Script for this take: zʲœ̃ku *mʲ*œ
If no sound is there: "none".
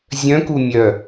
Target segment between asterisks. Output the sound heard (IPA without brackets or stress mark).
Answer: mʲ